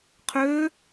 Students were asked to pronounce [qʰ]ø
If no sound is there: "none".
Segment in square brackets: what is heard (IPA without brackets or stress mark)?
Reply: qʰ